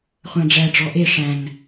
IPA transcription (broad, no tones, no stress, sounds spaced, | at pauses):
χʷ æ̃ ɖ͡ʐ æ ɖ͡ʐ ɔ ʔ e ʂ æ̃ ŋ